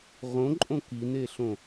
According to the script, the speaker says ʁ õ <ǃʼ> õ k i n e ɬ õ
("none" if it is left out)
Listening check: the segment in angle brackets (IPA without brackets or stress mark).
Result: ǃʼ